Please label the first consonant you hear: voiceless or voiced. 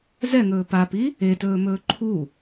voiced